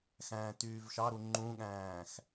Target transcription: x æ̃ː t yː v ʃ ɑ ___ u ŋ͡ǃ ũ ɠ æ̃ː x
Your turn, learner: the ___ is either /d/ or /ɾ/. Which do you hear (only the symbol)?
ɾ